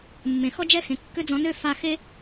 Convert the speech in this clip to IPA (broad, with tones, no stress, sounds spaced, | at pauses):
mː ẽ˨ x ɔ˦ d͡ʒ ɛ˦ x ẽ˨ kː ø˦ d͡z ɔ̃˧ n ø˦ f a˧ x e˦